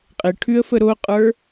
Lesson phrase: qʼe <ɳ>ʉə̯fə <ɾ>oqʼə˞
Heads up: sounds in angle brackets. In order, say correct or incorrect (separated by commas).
incorrect, correct